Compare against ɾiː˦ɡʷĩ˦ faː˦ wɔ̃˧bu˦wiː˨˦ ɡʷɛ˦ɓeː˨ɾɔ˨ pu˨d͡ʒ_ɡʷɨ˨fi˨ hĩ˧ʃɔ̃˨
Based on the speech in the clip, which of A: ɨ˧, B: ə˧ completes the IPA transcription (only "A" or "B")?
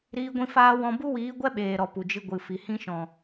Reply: A